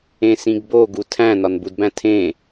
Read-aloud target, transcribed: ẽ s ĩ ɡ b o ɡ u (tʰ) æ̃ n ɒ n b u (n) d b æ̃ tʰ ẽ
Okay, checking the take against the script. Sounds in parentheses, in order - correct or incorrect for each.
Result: correct, incorrect

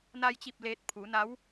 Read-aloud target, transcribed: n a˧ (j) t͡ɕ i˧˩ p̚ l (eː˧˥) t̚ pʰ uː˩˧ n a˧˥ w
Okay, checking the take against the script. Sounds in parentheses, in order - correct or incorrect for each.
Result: correct, incorrect

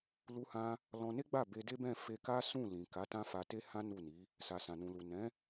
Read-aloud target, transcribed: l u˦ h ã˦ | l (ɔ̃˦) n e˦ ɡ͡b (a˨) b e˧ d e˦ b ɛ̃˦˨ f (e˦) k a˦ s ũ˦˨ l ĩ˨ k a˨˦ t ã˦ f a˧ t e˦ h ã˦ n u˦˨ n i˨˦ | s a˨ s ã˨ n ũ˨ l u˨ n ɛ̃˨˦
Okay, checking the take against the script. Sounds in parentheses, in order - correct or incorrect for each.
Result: incorrect, incorrect, incorrect

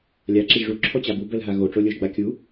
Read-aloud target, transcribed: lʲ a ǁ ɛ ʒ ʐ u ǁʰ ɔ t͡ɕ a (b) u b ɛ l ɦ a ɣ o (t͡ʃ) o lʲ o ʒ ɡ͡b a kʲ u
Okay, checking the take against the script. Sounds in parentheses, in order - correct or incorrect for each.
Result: correct, incorrect

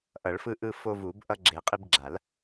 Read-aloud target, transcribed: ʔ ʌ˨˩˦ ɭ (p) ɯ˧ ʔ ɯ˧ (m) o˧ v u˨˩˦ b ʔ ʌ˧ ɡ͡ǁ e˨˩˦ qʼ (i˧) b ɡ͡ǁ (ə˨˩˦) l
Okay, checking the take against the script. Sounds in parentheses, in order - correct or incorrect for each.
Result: incorrect, incorrect, correct, incorrect

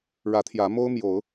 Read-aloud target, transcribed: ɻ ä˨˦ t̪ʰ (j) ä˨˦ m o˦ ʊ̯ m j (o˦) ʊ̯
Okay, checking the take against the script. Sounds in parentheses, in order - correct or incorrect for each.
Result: correct, incorrect

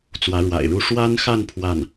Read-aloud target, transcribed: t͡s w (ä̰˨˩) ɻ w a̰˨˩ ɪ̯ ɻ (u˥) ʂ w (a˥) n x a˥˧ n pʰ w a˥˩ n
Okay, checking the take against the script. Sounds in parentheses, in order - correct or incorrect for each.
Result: incorrect, correct, correct

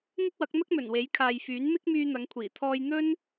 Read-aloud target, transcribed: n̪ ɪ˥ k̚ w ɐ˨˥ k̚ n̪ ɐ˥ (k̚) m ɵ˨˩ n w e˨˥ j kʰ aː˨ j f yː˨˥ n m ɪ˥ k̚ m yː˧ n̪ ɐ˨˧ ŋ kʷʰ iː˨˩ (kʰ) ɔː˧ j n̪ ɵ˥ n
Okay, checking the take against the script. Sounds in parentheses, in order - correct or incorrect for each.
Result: correct, incorrect

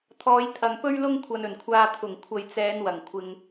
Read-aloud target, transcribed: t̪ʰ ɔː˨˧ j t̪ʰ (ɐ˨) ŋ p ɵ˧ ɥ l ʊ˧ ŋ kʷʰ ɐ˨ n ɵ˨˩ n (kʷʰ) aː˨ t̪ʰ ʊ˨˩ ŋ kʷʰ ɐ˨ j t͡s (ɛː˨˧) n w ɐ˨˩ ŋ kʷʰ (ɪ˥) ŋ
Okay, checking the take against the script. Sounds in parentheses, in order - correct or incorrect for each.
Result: correct, correct, correct, incorrect

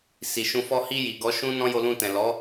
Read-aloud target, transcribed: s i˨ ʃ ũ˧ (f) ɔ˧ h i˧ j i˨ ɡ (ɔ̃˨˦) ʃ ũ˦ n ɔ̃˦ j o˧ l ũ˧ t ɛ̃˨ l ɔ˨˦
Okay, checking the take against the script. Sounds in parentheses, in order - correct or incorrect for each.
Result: correct, incorrect

